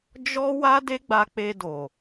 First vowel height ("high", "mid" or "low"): mid